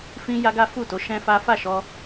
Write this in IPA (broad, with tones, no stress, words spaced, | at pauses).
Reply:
fĩ˦ja˦ɡa˦ fu˦˨to˨˦ ʃɛ̃˦fa˦ fa˦˨ʃɔ˧